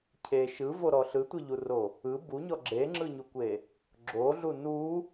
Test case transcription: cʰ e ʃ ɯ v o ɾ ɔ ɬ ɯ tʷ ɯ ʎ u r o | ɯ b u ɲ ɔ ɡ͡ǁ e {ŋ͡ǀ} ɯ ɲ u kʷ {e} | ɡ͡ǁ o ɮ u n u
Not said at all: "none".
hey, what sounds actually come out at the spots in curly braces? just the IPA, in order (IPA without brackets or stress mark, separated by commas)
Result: ŋ͡ǁ, e